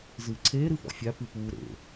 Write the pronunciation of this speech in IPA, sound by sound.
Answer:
z ɨː ǀʰ eː ɾ ɨ f ɔ̰ fʲ a p ɨ p uː ɾ ḛ

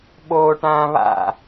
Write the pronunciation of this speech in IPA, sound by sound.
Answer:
ɓ oː ʈ ãː β a̰

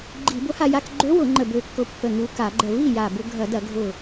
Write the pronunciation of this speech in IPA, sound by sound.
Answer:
ɡ͡ǃ i˧˩˧ b ʊ˧˥ h a˧ j a˧ k ɡ͡ǃ ø˧˥ w ʊ˧˩˧ ŋ͡ǃ ə˧˩ b ø˧˩ kː ʊ˧˩ pː ə˧˩ ŋ u˧˩ k a˧˩˧ ɡ͡ǃ ə˧˩ v i˥˩ j a˧˩ b ʊ˧ ɡʱ ɐ˧˩˧ d ɐ˧˩˧ ɡʱ ʊ˧˩

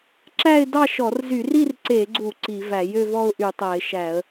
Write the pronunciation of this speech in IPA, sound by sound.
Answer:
ǁ æ˥˧ ɪ̯ d ɑ˥˧ ʃ ɔ˧˩˧ r z y˧˩˧ r i˥˧ r ǀ e˧˩˧ ɡ͡ǀ u˧˩˧ ǀ i˧˩˧ v æ˧˩˧ j ø˥˧ v ɔ˥˧ ʊ̯ ʔ y˧˩˧ tˤ æ˧˩˧ ɪ̯ ʃ æ˧˩˧ ə̯

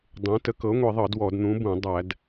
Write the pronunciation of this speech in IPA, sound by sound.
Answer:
dˤ ẽ˨˥ t ə˨˥ k ɤ˨˥ ŋʷ i˧˩˧ ðˤ ɤ˧˩˧ d w ɔ˧˩˧ d n̪ ũ˨˥ b ũ˧˩˧ dˤ æ˧˩˧ d

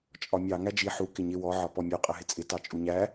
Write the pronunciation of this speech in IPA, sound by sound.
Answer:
t͡ʃʼ ɒ mʲ ɑ ŋ æ d͡ʒ i ħ u k ɪ ɲ ɪ w ɔ ʕ ɒ p ɔ mʲ ɔ qʼ ə ɦ ɪ t͡sʼ ɪ t ɑ t͡ʃʼ u ɲ æ

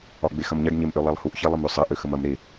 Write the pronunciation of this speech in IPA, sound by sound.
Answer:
ɒ ɡ͡b e x ɐ m ɲ ɐ ɖ ɲ e m ʔ ø lˠ ɛ lˠ h u ʔ ç ɛ lˠ ə m ø sˤ ɐ ʔ ø x ə m ɐ m ɾ e

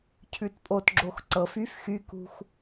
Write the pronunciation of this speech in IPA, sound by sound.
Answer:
cʰ ʉ t pʼ o t ɡ͡ǁ o x ǀ ɤ f y f x y k ṳ x

